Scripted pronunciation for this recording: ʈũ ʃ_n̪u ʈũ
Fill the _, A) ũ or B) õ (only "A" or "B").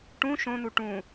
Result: B